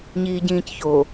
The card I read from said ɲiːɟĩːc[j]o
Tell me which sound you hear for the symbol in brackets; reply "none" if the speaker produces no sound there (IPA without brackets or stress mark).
ç